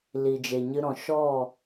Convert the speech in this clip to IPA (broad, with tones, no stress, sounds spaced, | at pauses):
l i˨ d͡ʒ e˨ ɲ ɨ˧ ɾ ɔ̃˨ ʃ ɔ˦˨